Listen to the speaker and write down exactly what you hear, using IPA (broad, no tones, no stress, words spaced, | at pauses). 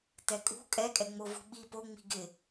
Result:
tɛkʼṳ kʼɛkʼɛŋ͡mo vṳɓi po ŋ͡mi̤ɡɪ